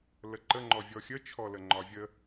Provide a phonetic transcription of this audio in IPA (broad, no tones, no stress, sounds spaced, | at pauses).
l ə ǃ ə ŋ͡ǃ ɔ vʲ ɔ xʲ ə t͡ʃʰ ɔ l ə ŋ͡ǃ ɒ vʲ ə